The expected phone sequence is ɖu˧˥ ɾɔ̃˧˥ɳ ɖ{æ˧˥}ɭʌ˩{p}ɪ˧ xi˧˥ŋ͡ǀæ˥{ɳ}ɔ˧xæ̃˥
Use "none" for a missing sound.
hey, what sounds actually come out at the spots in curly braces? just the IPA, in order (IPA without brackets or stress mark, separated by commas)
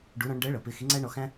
ɜ˧˥, p, ɳ